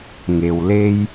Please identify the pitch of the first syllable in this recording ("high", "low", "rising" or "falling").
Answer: low